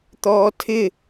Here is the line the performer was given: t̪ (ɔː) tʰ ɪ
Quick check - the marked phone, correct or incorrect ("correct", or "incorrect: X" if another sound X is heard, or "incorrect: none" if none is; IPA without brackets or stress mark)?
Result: correct